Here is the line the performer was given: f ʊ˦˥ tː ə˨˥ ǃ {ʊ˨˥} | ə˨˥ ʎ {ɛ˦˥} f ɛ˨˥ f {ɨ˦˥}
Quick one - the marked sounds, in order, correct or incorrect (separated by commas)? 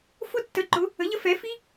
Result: correct, incorrect, incorrect